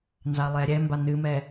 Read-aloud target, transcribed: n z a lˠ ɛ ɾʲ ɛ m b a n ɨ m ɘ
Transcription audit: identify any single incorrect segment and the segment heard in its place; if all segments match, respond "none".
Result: ɘ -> ɛ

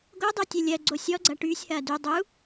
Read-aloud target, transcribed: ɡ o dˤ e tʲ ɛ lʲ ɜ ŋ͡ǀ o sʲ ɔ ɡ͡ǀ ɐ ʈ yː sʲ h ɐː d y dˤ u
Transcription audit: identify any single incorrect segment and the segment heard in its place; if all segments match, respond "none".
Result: ŋ͡ǀ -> ɡ͡ǀ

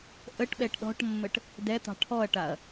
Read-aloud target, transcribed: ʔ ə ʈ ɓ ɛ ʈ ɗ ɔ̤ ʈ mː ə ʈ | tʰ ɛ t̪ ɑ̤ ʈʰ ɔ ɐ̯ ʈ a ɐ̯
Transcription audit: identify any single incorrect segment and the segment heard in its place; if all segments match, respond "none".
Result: tʰ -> d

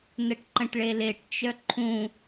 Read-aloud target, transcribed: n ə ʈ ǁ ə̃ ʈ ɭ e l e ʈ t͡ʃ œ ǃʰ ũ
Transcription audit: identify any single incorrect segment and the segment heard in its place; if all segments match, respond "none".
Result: ǁ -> ǃ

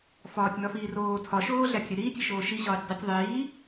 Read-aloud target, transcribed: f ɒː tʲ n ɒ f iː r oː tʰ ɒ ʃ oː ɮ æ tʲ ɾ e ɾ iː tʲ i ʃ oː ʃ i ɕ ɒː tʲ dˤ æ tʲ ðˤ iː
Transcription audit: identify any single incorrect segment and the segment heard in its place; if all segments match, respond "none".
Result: none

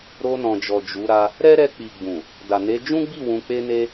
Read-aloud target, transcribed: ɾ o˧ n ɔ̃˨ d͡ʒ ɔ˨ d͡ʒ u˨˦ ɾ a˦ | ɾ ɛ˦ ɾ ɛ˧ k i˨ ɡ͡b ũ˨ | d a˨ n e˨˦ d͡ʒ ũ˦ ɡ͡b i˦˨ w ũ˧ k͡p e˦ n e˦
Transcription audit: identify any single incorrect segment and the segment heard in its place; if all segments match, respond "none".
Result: k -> k͡p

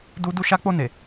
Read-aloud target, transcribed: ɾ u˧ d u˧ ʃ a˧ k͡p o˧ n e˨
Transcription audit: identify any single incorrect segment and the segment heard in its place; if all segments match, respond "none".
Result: ɾ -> d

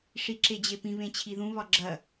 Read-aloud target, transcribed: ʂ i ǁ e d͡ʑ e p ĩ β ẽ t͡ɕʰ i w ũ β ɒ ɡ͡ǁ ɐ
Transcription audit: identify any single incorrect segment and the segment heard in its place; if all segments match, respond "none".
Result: w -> ð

